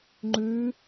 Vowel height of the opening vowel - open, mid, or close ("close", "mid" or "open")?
close